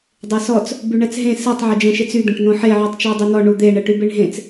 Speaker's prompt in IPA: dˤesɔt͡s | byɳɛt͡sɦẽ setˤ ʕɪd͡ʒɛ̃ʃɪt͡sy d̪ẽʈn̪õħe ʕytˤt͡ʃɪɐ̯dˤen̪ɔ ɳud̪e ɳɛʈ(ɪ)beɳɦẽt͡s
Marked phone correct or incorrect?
incorrect: y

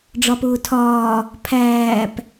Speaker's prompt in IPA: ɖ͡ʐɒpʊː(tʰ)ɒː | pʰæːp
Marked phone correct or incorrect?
correct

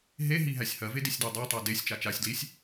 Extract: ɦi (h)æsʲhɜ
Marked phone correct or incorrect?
incorrect: ɦ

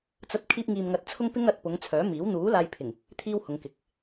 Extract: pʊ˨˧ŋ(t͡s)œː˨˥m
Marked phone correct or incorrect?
incorrect: t͡sʰ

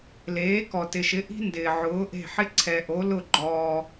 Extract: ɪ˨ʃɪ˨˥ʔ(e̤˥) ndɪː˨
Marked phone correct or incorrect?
incorrect: i̤˥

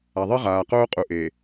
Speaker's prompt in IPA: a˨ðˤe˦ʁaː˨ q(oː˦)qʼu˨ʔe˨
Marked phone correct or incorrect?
correct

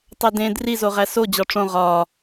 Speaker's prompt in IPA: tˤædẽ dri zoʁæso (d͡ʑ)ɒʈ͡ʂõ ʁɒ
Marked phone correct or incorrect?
correct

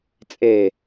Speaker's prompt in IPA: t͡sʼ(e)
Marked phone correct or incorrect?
correct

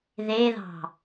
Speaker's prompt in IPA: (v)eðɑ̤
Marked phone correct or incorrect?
incorrect: ð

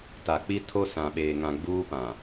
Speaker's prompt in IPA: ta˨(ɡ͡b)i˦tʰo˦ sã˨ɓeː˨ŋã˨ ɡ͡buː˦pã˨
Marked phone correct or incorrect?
incorrect: k͡p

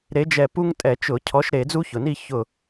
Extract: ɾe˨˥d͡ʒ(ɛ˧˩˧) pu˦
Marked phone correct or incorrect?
incorrect: ɛ˧˩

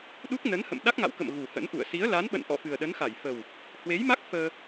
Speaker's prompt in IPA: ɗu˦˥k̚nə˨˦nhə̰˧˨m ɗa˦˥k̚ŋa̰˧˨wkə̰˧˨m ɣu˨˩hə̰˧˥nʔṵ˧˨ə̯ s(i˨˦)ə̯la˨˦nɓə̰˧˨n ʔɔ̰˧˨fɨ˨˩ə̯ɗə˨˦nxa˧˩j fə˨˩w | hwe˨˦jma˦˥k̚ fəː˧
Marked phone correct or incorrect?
correct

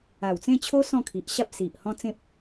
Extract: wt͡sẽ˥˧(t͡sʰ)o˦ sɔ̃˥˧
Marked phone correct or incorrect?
incorrect: t͡ɕʰ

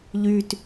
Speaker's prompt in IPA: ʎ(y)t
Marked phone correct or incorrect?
correct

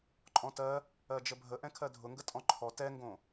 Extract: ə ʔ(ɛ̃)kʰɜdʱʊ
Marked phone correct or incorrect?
correct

